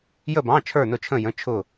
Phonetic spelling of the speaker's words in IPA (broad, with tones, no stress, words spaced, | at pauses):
jə˥˧bɑ̃˧˥˧ t͡ʃʰə˞˥˧nʊ˥˧t͡ʃʰə̃˥˧jə̃˧˥˧ t͡ʃʰʊ˥˧